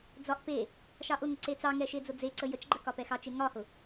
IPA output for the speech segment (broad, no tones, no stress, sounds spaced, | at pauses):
d͡z ɒ ʔ p e | ʃ ɑ ʔ ʊ ŋ ʊ ǀ e t͡s ɑ ŋ ɛ ʃ e d͡z ʊ d͡z e ǀ ə j ə t͡ʃ ɡ͡ǃ ə k ɒ p ɛ x ɑ t͡ʃ e ŋ ɒ h ʊ